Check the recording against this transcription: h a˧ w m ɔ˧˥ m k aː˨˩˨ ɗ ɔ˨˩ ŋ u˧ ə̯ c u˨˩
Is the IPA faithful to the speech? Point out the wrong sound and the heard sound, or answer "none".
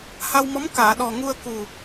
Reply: c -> k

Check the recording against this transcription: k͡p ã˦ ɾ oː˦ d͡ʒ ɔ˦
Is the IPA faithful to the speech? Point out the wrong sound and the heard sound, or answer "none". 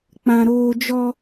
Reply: none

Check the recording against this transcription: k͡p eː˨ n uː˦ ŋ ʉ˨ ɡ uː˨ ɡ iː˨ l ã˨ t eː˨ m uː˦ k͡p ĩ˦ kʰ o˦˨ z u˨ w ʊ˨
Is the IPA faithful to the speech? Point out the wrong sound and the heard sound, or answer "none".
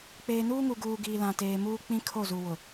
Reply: ʉ˨ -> u˨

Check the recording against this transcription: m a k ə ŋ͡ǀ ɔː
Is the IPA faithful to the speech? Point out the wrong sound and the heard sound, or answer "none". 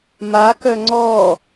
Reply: ə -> œ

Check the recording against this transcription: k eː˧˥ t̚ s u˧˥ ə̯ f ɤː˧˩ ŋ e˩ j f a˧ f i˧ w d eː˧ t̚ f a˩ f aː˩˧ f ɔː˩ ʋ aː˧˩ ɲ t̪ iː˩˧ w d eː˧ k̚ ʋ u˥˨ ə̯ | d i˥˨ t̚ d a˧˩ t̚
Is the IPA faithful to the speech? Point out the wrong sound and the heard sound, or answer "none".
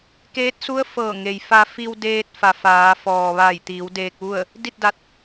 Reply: ɲ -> j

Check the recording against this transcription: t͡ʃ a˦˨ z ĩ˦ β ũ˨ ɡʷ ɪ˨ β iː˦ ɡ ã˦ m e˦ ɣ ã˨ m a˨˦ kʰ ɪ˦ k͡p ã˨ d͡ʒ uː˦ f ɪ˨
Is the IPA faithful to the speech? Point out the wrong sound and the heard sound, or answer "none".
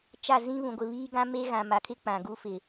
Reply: d͡ʒ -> ɡ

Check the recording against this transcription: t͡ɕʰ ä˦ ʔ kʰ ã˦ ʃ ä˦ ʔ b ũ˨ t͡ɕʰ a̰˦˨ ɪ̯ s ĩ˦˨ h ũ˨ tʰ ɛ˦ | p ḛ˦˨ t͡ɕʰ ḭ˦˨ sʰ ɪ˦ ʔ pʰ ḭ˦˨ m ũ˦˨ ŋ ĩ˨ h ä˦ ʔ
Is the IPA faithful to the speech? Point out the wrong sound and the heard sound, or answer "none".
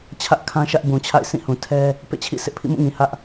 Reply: none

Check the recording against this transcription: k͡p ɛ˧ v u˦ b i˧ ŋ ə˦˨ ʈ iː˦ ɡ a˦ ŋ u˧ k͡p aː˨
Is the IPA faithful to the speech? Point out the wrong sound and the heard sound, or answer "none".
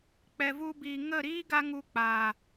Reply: ʈ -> ɾ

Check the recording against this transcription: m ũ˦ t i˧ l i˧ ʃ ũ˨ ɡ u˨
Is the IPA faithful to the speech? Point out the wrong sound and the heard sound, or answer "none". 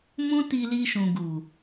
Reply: none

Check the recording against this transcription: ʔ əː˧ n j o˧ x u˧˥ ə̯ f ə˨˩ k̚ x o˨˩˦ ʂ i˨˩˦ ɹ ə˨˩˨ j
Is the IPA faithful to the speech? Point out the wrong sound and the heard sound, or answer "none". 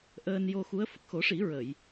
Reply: none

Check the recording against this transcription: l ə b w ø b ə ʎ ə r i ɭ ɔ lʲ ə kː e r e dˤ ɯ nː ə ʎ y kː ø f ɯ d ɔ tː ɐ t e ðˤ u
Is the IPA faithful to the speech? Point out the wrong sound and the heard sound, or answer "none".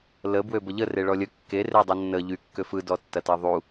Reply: i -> e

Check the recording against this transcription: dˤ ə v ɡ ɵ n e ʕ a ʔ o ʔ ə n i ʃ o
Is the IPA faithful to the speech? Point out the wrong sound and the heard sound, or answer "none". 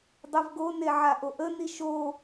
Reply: ɵ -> o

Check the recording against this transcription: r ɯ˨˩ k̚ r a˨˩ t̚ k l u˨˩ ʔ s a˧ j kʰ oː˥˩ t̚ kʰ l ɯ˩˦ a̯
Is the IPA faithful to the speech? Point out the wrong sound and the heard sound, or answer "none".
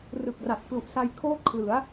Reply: none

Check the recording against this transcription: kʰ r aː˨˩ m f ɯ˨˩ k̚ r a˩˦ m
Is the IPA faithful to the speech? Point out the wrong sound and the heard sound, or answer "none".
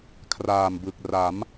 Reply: f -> b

